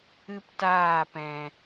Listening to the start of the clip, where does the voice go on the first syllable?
high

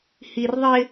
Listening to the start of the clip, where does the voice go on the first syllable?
low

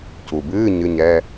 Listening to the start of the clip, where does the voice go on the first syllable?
low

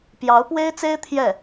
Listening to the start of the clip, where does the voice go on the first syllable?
rising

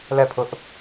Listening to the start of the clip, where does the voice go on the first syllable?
falling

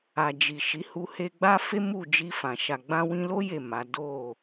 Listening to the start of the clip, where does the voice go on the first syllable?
low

